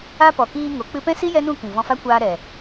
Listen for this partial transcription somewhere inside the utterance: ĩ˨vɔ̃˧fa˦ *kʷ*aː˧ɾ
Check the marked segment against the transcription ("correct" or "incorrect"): correct